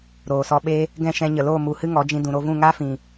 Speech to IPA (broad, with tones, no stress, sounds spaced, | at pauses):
ɾ oː˨ s ɔ˧ ɓ e˦ | ɡ ɛ̃˦˨ ʃ ɛ̃˧ ɲ ə˨ l oː˦˨ m u˨ h ɨ˦ ŋ ɔ˨˦ d͡ʒ ĩ˧ d ũ˨ ɾ o˧ v ũ˦˨ ŋ aː˦ f ĩ˨